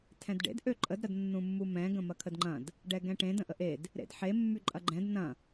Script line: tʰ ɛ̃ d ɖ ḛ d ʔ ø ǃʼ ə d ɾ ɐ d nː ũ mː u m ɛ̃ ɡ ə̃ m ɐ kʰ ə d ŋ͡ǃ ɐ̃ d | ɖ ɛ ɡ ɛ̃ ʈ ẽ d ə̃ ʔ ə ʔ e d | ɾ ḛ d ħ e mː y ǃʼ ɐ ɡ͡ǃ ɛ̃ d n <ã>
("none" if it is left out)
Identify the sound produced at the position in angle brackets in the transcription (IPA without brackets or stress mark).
ɐ̃